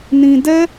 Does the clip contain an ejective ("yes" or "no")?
no